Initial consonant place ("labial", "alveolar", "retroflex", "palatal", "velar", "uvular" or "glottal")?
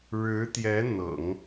retroflex